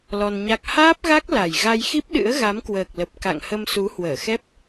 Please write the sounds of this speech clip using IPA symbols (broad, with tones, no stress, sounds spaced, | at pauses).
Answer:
l ɔ˧ n ɲ a˦˥ k̚ h aː˦˥ p̚ ɣ a˦˥ k̚ l a˨˩ j ɣ a˧ j x i˦˥ p̚ ɗ ɨ̰˧˥ ə̯ ɣ a˨˦ m k w əː˨˩ k̚ l ə˨˩ p̚ k a̰˧˨ ŋ h ə˧ m s u˨˦ h w əː˧˩ x ɛ˦˥ p̚